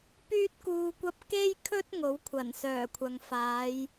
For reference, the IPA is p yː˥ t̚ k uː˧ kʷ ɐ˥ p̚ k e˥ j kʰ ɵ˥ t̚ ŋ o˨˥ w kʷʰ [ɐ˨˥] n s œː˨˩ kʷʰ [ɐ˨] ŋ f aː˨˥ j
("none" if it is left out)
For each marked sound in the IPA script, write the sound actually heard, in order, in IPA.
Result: ɐ˨˩, ɐ˨

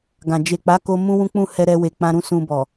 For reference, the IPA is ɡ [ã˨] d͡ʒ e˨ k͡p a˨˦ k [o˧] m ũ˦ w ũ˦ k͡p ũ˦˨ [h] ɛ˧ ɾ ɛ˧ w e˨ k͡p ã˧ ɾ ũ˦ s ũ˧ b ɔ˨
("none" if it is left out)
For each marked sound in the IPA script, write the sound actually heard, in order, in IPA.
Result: ã˨, o˦, h

